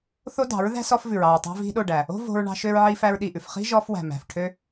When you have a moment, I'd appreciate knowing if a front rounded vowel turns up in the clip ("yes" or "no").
yes